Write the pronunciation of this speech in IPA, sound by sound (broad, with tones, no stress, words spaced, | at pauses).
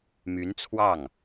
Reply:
my˧˥nt͡sʰwɑ˥˩ŋ